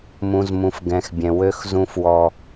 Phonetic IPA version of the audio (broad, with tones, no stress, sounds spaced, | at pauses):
m ũ˨ z m ũ˨ f ɡ ɛ̃˨ x bʲ ɛ̃˨ w ø˦ x z ũ˦ f w ɔ˦